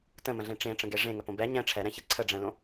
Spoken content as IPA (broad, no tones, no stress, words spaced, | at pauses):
tə̃mə̃ɮẽ ʈ͡ʂẽʈ͡ʂə̃ɡe ʐẽŋəpõ bɛ ɲɛ̃ ʈ͡ʂʰɛɾɛ̃çe ǀʰəɖ͡ʐɛ̃lõ